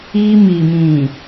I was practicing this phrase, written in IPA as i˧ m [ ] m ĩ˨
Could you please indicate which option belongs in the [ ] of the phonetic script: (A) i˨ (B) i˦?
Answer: A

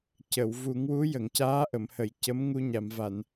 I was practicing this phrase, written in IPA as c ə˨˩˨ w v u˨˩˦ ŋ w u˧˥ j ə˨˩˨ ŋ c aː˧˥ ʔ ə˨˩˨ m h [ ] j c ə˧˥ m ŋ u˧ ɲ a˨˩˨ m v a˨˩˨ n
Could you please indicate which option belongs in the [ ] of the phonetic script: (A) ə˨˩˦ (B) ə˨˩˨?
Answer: B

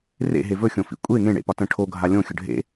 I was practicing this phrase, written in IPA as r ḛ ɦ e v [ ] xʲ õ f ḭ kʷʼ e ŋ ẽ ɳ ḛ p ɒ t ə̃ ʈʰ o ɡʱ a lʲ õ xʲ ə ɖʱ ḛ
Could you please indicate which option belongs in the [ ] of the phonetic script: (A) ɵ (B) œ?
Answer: A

